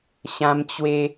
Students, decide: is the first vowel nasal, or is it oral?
nasal